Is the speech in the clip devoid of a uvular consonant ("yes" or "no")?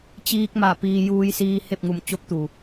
yes